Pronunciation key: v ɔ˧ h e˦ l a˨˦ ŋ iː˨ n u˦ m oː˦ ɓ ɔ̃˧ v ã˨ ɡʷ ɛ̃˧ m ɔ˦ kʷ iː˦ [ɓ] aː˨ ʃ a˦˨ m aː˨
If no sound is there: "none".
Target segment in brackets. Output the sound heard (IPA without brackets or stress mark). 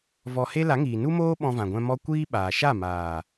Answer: ɓ